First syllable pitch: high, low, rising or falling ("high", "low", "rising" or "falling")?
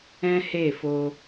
high